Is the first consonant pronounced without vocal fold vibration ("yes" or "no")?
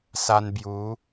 yes